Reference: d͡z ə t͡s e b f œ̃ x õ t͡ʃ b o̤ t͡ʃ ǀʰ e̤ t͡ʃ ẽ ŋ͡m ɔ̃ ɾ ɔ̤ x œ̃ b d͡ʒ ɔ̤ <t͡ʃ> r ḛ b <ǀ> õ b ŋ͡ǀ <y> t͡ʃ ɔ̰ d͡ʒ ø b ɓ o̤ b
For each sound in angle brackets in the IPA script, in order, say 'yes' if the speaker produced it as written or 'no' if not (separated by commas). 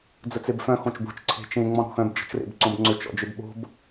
yes, yes, no